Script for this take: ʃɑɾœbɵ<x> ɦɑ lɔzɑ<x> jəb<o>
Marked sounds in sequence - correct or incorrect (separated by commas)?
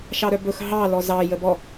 correct, incorrect, incorrect